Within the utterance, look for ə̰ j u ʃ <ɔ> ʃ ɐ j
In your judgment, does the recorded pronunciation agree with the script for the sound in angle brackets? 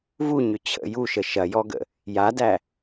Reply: no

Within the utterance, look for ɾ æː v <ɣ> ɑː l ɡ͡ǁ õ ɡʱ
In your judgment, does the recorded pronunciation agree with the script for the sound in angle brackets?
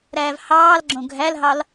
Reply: no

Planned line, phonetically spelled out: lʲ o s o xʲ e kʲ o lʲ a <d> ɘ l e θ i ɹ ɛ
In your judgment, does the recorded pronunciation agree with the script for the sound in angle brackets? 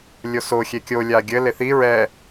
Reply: no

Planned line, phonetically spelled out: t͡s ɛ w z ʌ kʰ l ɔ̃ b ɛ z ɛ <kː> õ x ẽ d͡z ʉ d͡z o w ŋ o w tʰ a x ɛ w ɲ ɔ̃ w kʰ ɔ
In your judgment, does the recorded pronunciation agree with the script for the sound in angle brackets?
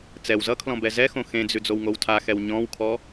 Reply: no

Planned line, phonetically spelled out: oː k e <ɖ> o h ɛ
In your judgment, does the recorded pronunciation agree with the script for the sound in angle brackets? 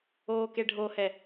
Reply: no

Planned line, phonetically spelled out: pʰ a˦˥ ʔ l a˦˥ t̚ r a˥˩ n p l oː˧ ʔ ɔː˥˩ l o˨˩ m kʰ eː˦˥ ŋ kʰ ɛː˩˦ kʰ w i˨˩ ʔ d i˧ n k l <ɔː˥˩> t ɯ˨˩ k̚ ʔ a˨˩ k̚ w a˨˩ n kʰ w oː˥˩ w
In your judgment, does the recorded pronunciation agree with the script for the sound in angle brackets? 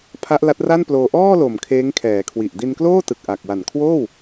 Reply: no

